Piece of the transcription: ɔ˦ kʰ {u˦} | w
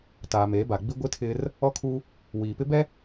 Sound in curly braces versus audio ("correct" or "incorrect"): correct